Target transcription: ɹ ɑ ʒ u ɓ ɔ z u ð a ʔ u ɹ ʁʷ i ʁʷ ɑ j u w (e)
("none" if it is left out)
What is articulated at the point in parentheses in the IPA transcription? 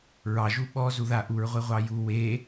e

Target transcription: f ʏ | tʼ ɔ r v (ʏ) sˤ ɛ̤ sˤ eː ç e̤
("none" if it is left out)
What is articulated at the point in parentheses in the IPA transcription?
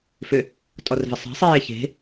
ɨ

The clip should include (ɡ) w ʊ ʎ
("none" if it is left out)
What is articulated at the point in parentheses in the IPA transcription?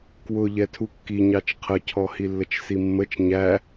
k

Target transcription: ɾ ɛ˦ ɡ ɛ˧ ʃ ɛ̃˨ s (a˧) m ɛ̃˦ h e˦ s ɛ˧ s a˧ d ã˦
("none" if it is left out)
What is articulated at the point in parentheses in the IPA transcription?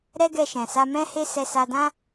a˧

